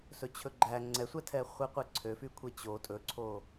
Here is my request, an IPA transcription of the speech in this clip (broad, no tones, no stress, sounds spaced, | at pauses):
s ɵ t͡ɕʰ ɵ ɡ͡ǃ æ ŋ͡ǀ ɛ sʷ ɛ tʰ ɛ χʷ e qʷ e ǀʰ ø f y kʷʰ e t͡ɕ o tʼ ɵ ǀʰ o